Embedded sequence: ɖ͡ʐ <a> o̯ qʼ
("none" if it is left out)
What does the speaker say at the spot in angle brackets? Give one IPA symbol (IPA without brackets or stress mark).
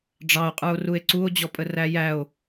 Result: ɑ